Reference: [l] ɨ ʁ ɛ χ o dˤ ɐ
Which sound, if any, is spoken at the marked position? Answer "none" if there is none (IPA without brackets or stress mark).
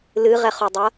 l